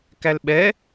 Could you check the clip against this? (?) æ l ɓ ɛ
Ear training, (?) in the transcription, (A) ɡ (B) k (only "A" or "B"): B